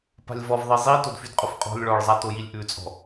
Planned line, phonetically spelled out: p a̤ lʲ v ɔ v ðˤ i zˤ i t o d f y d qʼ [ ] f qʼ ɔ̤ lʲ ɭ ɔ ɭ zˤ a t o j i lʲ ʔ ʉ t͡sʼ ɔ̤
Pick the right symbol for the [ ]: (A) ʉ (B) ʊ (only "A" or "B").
B